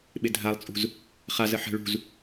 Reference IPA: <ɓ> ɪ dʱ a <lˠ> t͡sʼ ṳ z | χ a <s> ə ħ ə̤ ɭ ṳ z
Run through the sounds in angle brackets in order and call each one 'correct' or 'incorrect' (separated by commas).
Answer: correct, correct, incorrect